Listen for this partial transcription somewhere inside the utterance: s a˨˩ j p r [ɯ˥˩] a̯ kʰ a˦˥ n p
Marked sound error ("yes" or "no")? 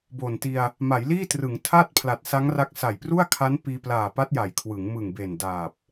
yes